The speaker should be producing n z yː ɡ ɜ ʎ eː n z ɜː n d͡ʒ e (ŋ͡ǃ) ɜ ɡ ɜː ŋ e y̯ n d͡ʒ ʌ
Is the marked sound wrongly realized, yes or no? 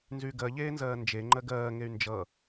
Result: no